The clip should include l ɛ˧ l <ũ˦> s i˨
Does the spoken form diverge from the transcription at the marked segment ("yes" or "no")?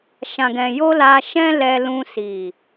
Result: yes